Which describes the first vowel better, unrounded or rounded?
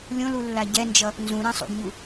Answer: rounded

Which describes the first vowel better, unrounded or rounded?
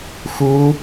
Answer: rounded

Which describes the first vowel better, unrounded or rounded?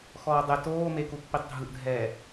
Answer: rounded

